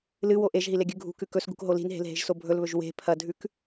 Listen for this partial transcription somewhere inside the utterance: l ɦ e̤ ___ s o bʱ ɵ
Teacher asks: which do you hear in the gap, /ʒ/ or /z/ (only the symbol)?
ʒ